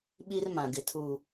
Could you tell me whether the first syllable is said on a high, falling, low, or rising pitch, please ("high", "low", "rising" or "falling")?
high